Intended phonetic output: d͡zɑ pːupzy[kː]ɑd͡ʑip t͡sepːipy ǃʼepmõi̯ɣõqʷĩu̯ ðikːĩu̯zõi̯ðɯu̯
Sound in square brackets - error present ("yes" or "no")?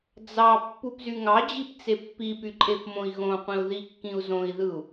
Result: yes